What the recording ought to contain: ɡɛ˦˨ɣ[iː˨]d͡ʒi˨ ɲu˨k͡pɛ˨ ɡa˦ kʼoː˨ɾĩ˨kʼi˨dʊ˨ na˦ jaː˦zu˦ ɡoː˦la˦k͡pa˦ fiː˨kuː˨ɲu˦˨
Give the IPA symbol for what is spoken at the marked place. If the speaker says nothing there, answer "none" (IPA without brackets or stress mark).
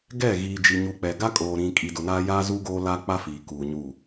iː˨